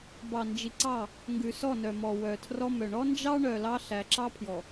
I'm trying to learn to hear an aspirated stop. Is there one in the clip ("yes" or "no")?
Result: yes